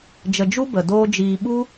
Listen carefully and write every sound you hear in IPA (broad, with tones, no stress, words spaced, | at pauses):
d͡ʒə˧d͡ʒu˦bə˨ doː˦d͡ʒiː˧ ɓu˦